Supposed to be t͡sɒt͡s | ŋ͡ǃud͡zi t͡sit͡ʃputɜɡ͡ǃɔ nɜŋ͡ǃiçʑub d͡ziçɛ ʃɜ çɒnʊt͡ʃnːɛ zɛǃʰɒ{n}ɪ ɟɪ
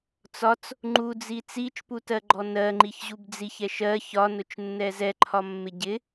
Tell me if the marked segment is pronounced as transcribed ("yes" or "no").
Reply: no